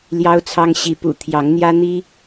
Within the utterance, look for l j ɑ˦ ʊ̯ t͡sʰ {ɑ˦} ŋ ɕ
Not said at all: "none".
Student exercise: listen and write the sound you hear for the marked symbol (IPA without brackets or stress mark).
ɑ˦